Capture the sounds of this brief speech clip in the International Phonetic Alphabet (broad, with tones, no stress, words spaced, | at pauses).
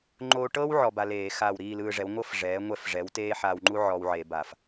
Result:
ŋ͡ǃo˧ʈɤ˥w ʕɔ˧ba˧leː˧˩˧ xaː˧˩wɾiː˥˨lɯː˧ʐɛ˩˥w ŋʷɤ˥f ʐɛː˩˥ŋʷɛ˥˨f ʐɛ˩˥wteː˥ħaː˧wŋ͡ǃu˥ ʕɔ˧wʕe˧˩˧ba˧˩˧f